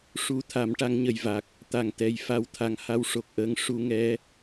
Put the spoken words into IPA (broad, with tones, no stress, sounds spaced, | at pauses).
ʂ u˨˩ t̪ʰ a˨˩˦ m ʈ a˧ ŋ ɲ ə˨˩ j v a˨˩ k̚ | t̪ a˨˩ ŋ t̪ ɛ˨˩ j f a˧˥ w t̪ʰ a˨˩ ŋ h a˧ w ʂ o˨˩ k̚ ʔ əː˧ ŋ ʂ u˧ ŋ ɛ˧˥